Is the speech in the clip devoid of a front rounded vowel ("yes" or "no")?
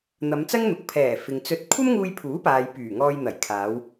no